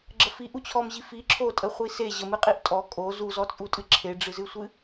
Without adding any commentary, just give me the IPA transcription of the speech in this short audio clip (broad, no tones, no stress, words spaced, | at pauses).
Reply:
ɡ͡ǁəfiʔut͡ɕʰɔm ʑifi ǁʰotʼəχʷi se ʑəmɨqʼiʔ tʼɔ kʼo zuzɔt͡sʼutʼɨ ǁʰeɖ͡ʐɨzɨsʷɨ